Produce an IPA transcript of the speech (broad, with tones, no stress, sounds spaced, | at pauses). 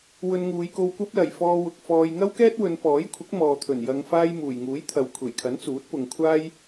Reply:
w ɵ˧ n ŋ uː˨˧ j k o˧ w kʷ ɐ˥ p̚ l ɐ˨˩ j f ɔː˧ w ʊ˨ k̚ f ɔː˨ j ŋ ɐ˥ w k ɛː˥ t̚ w ɵ˨˧ n p ɔː˨˥ j kʷʰ ɪ˨˥ k̚ m ɔː˨ t̪ʰ ɵ˨˩ n j ɐ˧ ŋ f aː˥ j m uː˨˩ j ŋ uː˨˥ j t̪ʰ ɐ˨ w kʷʰ e˨˩ j kʰ ɐ˨˥ n t͡s uː˨˥ t̚ p ʊ˨ ŋ kʷʰ aː˥ j